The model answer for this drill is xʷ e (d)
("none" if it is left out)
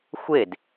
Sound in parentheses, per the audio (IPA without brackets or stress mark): d